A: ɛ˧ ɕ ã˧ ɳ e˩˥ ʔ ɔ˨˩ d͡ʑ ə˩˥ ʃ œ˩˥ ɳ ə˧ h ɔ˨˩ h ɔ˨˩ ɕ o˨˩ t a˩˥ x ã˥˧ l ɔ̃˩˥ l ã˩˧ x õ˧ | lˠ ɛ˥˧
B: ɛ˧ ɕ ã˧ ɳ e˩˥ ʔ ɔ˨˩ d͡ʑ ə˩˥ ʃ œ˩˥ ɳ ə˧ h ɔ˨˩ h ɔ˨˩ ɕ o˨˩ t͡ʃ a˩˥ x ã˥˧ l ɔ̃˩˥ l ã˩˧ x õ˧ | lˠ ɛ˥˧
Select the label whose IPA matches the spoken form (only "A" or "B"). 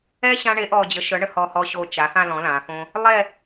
B